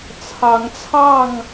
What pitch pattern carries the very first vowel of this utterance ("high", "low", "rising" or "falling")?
rising